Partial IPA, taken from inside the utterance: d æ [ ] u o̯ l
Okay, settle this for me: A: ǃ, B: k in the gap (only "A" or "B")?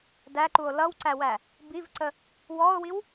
A